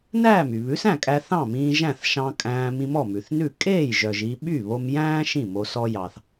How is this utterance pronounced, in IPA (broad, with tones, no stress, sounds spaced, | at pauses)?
n æː˥˩ m y˩ β ʉ˩˥ s æ̃˥˩ kʼ æ˧ θ ɑ̃˥˩ m ĩː˧ ʒ æ̃˥˩ θ ʃ ɑ̃˧ kʼ æ̃ː˧ m ĩ˧ m ɔ˥˩ m ʉ˩ θ n ʉ˥˩ kʼ eː˥˩ j ʒ œ˩ ʒ i˧ ɓ y˥˩ β o˧ m j æ̃ː˥ ʃ ĩ˥˩ m o˧ s ɔ˧ j ɑ˩ θ